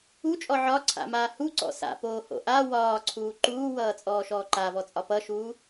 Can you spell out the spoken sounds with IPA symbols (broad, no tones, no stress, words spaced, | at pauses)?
ut͡ʃʼɔ ʕɒǀʰa̰maː huǀɔ̰ sa̰poːho̰ ʔa wɒːǀʰuː ǃuːwʌːt͡sʼɔːʃɔː ǃavɔt͡sʼɒ pʌʃuː